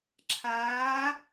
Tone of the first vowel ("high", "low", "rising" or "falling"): rising